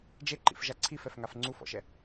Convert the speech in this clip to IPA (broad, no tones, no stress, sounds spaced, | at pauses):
d͡ʒ e ǃ ḭ f ʒ a ǀʰ i f ɛ f ŋ a f ŋ͡ǀ u f ɔ̰ ʃ ɛ